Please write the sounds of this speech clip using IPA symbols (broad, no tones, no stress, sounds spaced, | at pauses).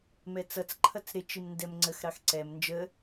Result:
m ɛ t͡s ʌ t͡s ǃʰ ʌ t͡s ɾ ɪ t͡ʃ i m n d ɛ m ŋ͡ǀ ə x ɾ ɑ x ǀ ɛ m n d͡ʒ ə